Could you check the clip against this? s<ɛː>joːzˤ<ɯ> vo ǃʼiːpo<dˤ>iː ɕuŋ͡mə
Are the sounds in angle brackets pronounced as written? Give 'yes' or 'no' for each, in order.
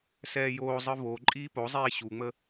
yes, yes, no

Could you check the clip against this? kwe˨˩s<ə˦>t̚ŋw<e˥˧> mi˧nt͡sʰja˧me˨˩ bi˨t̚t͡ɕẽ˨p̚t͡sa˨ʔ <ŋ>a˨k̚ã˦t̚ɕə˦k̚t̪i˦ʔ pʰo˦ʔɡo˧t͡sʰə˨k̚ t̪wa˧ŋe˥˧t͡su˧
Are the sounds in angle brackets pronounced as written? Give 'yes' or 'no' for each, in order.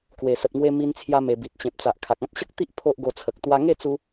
no, no, no

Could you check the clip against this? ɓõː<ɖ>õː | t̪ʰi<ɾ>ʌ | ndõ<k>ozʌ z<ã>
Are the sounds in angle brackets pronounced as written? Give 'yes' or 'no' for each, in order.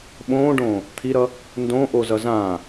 yes, yes, no, yes

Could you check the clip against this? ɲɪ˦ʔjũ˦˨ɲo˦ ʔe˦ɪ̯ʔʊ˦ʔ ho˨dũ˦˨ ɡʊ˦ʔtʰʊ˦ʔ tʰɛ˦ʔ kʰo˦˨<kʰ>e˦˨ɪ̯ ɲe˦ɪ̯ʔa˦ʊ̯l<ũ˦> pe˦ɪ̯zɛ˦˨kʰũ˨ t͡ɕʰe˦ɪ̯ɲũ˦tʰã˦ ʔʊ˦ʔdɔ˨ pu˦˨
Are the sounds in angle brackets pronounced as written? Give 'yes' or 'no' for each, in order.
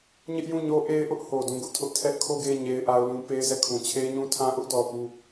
no, yes

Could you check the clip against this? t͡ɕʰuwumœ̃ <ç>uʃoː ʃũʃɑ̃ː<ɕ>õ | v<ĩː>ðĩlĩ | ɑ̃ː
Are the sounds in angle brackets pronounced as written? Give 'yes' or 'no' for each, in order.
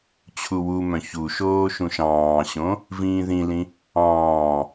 yes, yes, yes

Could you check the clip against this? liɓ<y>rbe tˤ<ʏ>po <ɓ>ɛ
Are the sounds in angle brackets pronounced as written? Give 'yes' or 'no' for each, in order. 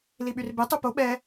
yes, no, yes

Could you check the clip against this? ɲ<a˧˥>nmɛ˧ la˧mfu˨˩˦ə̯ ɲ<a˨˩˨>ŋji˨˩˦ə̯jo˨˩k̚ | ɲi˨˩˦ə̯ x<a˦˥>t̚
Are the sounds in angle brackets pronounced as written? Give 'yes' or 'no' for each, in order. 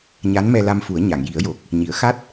yes, yes, yes

